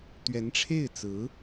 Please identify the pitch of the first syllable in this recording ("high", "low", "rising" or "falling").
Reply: rising